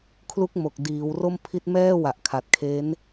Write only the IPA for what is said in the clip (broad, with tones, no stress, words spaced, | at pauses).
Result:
kʰlu˦˥k̚mo˨˩k̚ diː˩˦w ro˥˩mpʰi˦˥t̚ mɛː˥˩ wa˨˩ʔkʰa˨˩t̚kʰe˦˥n